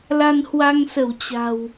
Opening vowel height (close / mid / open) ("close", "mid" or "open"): open